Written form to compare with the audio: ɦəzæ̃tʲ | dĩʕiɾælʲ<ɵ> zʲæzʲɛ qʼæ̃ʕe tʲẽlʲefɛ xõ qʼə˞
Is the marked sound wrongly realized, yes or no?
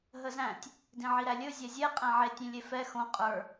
no